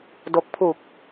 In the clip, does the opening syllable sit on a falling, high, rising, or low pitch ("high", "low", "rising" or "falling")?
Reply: low